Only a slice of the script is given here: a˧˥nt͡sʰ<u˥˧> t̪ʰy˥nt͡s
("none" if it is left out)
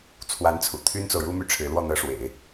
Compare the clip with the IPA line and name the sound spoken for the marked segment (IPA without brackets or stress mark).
ṵ˨˩